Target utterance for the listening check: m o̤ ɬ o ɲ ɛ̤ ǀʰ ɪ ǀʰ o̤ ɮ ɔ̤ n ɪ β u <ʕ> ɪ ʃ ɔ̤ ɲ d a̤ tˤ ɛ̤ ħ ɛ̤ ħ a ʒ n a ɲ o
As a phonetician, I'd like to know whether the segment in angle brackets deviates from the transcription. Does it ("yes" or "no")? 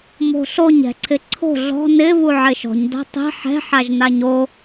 no